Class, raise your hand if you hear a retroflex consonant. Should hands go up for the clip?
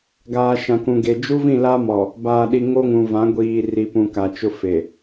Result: no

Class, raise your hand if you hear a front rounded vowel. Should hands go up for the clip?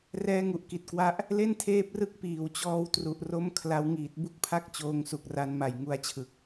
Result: no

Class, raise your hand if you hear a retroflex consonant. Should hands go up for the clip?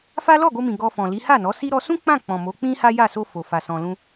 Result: no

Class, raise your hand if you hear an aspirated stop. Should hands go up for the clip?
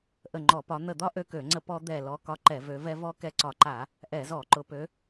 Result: no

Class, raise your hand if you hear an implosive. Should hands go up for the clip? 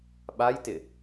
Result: yes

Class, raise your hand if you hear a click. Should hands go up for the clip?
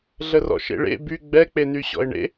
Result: no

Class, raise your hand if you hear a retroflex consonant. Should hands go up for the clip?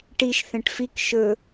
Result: yes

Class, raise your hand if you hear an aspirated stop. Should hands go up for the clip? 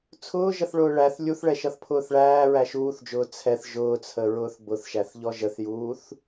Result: yes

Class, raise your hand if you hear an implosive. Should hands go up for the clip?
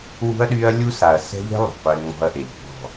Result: yes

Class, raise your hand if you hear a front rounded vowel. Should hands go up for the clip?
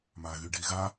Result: yes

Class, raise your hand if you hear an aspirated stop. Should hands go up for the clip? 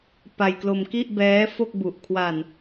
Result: yes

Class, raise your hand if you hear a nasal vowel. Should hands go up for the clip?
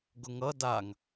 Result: no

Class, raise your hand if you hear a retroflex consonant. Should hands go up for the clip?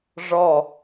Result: yes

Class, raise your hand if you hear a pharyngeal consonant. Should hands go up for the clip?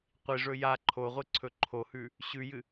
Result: no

